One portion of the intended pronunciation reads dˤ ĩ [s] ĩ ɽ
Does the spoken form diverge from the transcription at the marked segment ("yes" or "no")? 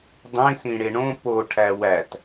no